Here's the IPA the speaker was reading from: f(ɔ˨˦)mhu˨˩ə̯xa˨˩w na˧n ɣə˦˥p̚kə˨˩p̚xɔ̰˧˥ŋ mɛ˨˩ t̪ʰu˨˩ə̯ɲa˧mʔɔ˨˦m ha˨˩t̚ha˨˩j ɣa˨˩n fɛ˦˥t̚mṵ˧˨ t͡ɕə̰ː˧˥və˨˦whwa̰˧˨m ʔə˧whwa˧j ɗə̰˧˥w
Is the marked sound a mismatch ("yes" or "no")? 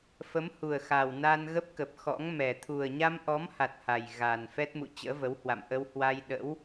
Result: yes